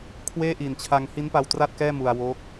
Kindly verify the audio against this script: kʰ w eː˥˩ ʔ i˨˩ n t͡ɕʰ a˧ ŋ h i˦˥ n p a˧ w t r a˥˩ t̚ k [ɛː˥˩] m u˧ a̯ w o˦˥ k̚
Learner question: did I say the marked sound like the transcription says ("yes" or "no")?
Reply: yes